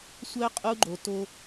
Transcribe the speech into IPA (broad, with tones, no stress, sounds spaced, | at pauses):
sʷ œ˦ qʼ u˦ ɡ͡ǃ o˨ t o˦